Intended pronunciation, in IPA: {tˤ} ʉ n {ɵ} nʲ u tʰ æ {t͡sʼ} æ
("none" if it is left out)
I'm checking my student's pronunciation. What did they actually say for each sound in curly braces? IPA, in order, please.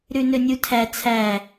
ɾ, ɵ, t͡sʰ

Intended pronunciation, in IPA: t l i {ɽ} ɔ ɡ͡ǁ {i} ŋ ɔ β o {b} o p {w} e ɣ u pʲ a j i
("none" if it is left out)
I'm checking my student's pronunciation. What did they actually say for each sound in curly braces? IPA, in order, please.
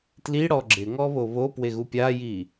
ɽ, ɪ, β, w

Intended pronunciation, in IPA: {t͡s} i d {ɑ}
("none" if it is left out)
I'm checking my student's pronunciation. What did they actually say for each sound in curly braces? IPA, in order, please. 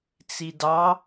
t͡s, ɑ

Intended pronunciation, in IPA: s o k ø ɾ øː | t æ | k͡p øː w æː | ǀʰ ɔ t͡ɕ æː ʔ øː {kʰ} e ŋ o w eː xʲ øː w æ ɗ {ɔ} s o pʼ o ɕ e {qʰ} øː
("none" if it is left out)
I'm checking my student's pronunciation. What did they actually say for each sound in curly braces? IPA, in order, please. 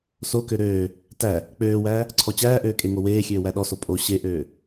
kʼ, ɔ, ʔ

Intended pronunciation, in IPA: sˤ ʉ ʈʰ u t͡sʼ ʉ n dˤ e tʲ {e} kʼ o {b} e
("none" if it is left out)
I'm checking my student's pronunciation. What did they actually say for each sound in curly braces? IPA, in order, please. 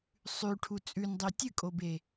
ɨ, b

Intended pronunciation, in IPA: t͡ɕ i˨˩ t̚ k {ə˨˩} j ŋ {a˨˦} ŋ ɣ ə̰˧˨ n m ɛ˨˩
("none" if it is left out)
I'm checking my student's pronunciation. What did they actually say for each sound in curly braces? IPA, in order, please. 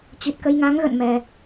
ə˧, a˨˦

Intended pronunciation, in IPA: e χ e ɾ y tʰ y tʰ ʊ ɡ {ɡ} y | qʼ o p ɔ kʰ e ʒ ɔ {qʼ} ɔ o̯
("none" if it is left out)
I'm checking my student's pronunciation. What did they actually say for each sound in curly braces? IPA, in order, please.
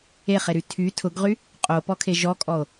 ʁ, kʼ

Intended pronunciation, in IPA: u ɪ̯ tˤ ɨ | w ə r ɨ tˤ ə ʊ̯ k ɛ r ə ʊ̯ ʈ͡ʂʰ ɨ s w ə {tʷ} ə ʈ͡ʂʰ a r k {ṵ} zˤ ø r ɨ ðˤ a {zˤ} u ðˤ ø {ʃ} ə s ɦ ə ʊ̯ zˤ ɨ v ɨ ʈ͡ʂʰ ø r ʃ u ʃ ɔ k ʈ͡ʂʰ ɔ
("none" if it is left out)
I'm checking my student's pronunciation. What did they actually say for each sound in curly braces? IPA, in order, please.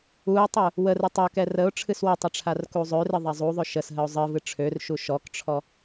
tˤ, u, zˤ, ʃ

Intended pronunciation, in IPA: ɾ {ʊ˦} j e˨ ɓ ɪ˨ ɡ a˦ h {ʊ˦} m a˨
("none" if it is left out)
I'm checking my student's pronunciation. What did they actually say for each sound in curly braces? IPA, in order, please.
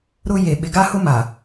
ʊ˦, ʊ˦

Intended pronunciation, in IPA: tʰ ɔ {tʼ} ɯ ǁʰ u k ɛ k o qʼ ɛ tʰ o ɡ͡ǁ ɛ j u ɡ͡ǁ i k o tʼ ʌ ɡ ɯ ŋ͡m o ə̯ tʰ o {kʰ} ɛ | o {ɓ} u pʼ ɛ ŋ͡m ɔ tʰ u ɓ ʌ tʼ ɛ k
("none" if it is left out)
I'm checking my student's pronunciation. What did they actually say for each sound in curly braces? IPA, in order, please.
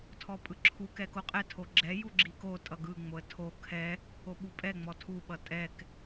pʼ, kʰ, ɓ

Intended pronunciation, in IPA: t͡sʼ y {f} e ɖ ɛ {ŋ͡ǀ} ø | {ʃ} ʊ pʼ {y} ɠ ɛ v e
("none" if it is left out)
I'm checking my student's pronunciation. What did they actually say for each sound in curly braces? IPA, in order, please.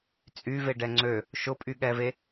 v, ŋ͡ǀ, ʃ, y

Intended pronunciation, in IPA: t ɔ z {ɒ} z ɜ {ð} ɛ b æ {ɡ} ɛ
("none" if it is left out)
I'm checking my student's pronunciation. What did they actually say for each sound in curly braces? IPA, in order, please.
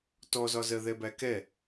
ɒ, ð, k

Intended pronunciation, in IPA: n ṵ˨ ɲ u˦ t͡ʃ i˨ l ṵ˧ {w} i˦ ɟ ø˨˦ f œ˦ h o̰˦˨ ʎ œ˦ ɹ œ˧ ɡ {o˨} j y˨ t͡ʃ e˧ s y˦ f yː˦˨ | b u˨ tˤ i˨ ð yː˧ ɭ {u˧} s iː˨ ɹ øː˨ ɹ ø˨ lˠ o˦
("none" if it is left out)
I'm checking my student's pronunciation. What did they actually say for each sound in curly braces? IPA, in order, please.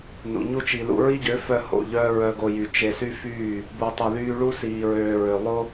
ɹ, o˧, u˦

